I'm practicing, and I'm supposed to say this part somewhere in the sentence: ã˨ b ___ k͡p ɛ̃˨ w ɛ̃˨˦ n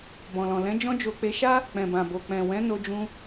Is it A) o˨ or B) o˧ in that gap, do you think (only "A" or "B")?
A